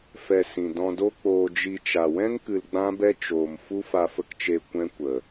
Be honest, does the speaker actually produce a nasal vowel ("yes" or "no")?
yes